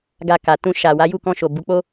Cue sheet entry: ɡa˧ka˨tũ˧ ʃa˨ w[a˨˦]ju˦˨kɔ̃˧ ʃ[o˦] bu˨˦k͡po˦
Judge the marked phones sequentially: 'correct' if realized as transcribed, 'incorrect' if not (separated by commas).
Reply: correct, incorrect